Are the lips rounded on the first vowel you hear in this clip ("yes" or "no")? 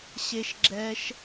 no